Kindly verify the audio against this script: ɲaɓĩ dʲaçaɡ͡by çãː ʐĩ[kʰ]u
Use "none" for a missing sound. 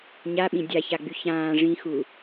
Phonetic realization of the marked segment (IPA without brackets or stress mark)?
x